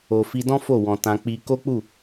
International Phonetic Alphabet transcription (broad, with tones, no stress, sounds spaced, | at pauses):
o˨ f i˧ d ɔ̃˦ f o˦˨ w ɔ̃˨ t ã˧ k͡p i˧ k o˦ k͡p u˦˨